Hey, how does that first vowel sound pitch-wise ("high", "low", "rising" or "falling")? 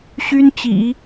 high